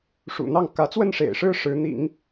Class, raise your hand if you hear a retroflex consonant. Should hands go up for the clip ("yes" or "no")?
yes